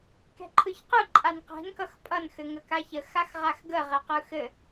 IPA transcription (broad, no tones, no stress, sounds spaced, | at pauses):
k ɛ̤ ǃʰ ɯ ç q ɯ ǃʼ a n q ɛ̤ n k ʌ x pʼ ʌ n x ɘ ŋ ə k a ç ə x a x ʁ a x ɡ ə ʁ ɛ q ɯ x ɘ